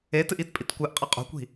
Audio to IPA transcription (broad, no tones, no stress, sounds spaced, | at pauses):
e t ɨ ʔ i t pʼ i t kʷ ɨ ʔ qʼ ɐ qʼ o̤ kʷ i̤